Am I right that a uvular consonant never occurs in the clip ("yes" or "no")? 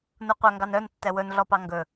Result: no